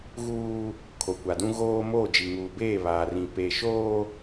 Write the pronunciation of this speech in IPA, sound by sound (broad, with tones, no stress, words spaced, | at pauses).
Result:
ɣuː˦ | kʰo˨kʷa˨dũ˦ ɣoː˦ moː˦˨d͡ʒi˨ŋuː˨beː˦˨ βaː˨rĩ˨ pe˨ʃoː˦